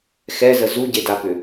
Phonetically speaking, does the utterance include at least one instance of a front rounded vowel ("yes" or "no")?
yes